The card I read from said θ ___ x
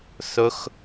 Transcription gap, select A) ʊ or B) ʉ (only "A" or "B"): A